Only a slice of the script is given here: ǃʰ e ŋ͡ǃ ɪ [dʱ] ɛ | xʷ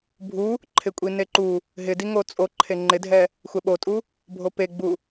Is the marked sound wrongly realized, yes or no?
no